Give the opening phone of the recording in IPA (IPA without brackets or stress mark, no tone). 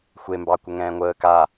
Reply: xʷ